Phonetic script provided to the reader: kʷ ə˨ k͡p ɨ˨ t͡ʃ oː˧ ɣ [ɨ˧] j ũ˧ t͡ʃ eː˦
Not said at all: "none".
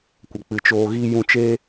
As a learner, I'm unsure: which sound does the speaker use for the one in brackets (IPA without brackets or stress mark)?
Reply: i˧